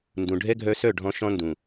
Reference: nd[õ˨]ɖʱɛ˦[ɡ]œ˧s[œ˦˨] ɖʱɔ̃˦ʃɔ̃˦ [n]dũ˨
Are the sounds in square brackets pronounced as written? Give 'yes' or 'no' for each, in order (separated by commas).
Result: no, no, yes, yes